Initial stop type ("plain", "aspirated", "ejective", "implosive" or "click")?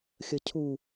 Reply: aspirated